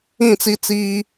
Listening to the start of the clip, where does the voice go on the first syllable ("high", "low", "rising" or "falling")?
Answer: falling